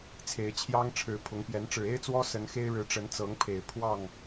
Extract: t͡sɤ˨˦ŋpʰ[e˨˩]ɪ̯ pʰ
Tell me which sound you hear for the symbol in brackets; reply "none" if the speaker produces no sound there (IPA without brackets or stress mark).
e˨˩